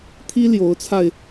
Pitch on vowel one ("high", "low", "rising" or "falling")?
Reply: high